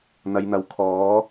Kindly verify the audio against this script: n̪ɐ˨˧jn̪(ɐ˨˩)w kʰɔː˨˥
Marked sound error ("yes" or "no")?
yes